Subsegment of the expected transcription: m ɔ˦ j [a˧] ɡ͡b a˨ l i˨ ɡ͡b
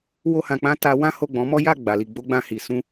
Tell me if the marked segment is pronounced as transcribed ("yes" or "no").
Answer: no